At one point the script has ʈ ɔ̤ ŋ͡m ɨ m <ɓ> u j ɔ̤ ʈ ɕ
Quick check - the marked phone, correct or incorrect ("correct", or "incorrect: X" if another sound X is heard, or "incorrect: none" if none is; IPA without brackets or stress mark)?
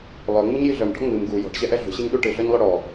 incorrect: ɡ